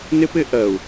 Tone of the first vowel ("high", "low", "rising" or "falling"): high